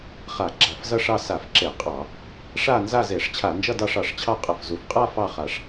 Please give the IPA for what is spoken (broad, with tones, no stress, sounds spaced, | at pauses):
χ a˧˩˧ ɡ͡ǁ a˧˩˧ f z ʌ˥˧ ʂ ɑ˥˧ s a˧˩˧ f ǁ e˧˩˧ qʼ ɑ˧˩˧ | ʂ a˥˧ n z a˥˧ z e˧˩˧ ʂ t͡ɕʰ a˧˩˧ n d͡ʒ ʌ˥˧ d ɑ˥˧ ʂ ɑ˨˩ ʂ t͡ɕʰ ɑ˥˧ qʼ ʌ˨˩ f z u˨˩ f qʼ a˥˧ f ɑ˥˧ χ a˨˩ ʂ